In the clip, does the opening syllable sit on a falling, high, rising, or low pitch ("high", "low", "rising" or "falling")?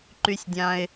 low